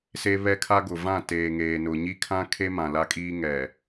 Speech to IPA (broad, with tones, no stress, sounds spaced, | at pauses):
s e˦ β ɛ˦ kʰ a˦ ɡ ʊ˨ v ã˦˨ t eː˨ ŋ eː˨ n ʊ˨ ɲ i˦ kʰ ã˦ kʰ e˦ m ã˨ l a˦ kʼ iː˦ ŋ ɛ˨